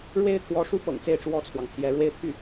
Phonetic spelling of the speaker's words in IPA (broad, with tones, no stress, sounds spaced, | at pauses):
ɻ w e˥ ɪ̯ t̪ʰ w ɔ˧˥ ʂ u˥ p ɤ̰˨˩ ŋ t͡s e˥˩ ɪ̯ ʈ͡ʂ w ɔ˥ t͡sʰ w ɑ˨ ŋ t̪ʰ j ɛ˧˥ ɻ w e˥˧ ɪ̯ t̪ʰ y˥˩